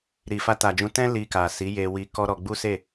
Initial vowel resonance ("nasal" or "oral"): oral